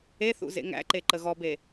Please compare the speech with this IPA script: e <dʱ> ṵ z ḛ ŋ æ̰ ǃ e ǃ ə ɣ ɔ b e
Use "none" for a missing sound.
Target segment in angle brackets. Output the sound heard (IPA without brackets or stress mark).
θ